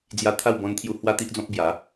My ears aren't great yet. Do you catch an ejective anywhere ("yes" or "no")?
no